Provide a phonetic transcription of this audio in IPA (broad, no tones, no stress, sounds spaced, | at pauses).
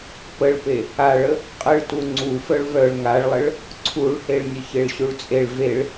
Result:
p ə ɭ p e | a ɭ ə | qʼ ə ɭ t u ŋ͡ǀ u f œ ɭ v œ ɭ ŋ a ɭ lˠ ə ɭ | ǀʰ u ɭ h e ɭ nʲ ə ç e ɭ ɕ u ɭ t͡sʼ e ɭ v e ɭ